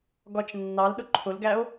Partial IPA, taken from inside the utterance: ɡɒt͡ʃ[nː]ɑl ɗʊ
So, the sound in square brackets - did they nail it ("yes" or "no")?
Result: yes